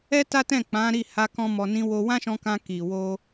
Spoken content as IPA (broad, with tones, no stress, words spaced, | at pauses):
ɛ˦ta˦tɛ̃˦˨ k͡pã˨˦ɾi˦˨ha˧kɔ̃˧ mɔ˧nĩ˦wo˦ wã˦ʃɔ̃˧kã˧ ki˨ wo˧